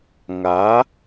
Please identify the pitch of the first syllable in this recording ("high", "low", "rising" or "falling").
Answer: rising